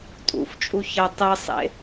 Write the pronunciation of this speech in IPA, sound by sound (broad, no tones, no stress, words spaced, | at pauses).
tʼṵft͡ʃʼu çɐ tˤɨsˤḛ